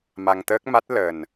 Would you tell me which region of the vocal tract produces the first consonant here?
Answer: lips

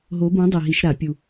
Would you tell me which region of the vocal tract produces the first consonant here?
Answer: throat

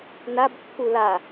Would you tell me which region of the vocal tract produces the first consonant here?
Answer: tongue tip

